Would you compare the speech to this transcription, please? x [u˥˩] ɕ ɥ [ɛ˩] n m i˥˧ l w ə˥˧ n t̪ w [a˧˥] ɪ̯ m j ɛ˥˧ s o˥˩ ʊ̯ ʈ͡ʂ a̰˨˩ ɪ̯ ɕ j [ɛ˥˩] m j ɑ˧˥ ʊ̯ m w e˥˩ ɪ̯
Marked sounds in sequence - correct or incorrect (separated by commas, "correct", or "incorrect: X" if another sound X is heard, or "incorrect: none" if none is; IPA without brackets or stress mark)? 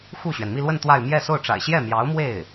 correct, correct, incorrect: a˥˧, correct